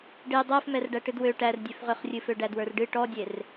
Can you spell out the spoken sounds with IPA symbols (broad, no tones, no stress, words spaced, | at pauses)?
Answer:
ɖe dˤɛfmɛrɖæ ʈɨdwø ʈærdʲøfʁøχrʲɨ føɖædwə˞rɖɨ ʈɔdʲer